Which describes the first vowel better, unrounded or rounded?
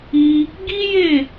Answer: unrounded